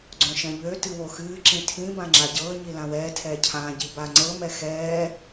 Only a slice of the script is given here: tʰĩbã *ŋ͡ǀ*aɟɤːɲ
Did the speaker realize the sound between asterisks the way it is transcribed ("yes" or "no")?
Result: no